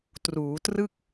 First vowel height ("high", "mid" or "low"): high